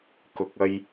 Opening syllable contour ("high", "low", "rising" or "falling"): low